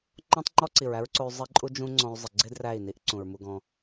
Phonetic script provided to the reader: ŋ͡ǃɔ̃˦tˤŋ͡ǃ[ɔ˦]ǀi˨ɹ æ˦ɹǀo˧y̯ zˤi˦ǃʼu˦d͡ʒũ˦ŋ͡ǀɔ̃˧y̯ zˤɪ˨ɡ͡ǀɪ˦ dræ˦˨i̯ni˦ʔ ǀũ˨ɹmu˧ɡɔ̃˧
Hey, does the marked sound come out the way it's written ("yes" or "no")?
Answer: yes